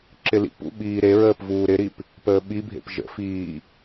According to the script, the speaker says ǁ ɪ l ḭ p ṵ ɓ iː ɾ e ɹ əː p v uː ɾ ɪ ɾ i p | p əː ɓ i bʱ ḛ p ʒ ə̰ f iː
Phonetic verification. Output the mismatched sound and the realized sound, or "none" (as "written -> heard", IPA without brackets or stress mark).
none